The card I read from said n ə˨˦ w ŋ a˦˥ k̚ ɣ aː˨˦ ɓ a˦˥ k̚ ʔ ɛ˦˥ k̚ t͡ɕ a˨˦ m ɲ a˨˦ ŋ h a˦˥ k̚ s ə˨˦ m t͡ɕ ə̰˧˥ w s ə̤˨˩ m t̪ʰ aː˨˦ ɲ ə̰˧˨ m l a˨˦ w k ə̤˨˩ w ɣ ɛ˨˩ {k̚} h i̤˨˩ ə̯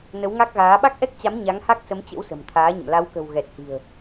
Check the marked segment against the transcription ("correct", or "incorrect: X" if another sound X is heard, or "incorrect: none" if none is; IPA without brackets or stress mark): incorrect: t̚